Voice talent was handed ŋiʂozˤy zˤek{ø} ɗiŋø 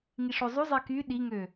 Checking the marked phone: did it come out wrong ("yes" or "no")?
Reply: yes